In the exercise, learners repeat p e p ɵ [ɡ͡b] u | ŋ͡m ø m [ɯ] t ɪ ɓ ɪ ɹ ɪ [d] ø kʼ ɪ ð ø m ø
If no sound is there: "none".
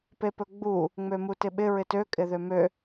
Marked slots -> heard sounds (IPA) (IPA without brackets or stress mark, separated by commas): ɡ͡b, u, t